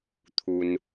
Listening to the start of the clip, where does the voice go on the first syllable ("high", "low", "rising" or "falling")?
low